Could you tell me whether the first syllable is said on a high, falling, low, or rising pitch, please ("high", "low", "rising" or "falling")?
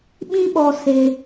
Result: high